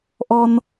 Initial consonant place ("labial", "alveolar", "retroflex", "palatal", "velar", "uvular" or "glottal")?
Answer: glottal